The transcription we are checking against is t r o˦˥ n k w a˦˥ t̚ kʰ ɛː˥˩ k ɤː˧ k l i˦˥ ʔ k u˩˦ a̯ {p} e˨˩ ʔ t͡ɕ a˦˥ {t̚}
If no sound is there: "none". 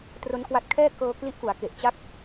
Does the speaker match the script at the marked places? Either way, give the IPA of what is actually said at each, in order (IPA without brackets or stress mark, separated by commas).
k, k̚